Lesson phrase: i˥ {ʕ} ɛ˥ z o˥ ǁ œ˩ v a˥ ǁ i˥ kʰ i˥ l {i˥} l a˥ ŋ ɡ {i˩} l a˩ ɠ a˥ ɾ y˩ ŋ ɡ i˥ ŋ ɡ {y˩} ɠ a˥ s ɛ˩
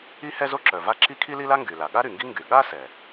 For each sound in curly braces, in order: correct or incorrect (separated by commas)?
incorrect, correct, incorrect, correct